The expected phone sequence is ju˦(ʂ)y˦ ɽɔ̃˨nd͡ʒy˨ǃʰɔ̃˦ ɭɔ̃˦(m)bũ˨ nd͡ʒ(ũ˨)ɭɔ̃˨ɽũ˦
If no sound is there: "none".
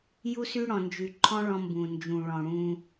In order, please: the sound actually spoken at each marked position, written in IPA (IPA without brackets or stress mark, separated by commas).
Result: s, m, ũ˨